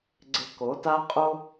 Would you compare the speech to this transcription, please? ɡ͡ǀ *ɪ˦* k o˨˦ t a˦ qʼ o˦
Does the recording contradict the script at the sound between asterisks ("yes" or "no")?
no